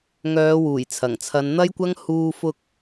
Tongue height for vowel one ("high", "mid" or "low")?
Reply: mid